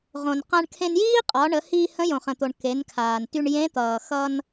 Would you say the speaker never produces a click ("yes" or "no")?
yes